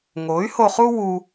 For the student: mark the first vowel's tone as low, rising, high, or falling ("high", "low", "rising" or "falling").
rising